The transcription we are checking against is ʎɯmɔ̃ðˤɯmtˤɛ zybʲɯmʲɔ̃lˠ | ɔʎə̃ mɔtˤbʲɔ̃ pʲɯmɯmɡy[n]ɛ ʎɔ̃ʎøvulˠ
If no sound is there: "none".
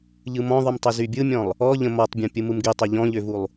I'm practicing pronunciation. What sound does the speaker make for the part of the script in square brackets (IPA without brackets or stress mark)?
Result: tˤ